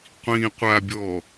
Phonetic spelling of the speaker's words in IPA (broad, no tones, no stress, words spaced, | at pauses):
qʷĩ qʷabʲɔ